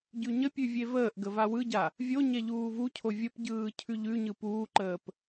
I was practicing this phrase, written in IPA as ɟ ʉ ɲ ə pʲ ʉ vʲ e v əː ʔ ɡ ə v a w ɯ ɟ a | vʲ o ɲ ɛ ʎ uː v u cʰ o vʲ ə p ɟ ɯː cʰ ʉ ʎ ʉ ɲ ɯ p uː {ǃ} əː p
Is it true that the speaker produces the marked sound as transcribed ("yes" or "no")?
yes